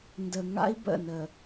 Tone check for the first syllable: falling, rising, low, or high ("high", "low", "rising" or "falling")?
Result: low